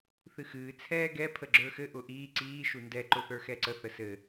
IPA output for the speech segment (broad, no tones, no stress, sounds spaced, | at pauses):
θ ɨ x ɨː t͡sʰ ɛː ɡ ɛ pʰ ə ɡ͡ǁ ə˞ x ɘ ʔ ʊ ʔ iː ǀ iː ʃ u n d ɛ ǃ ʊ θ ə˞ x ɛ ǀ ə θ ə s ɘ